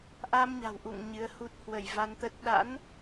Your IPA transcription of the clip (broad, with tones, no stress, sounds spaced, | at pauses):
ʔ a˧ m ɲ a̤˨˩ w ʔ ṵ˧˨ ŋ ɲ ɨ˨˦ ə̯ h u˦˥ t̚ h w ə˧˩ j v a˧ n t̪ ə˦˥ t̚ ɗ a̰˧˥ n